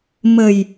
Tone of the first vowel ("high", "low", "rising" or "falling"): low